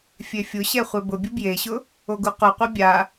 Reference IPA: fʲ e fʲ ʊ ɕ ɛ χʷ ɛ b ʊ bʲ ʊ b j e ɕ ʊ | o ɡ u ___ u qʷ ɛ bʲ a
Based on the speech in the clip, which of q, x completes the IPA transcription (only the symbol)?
q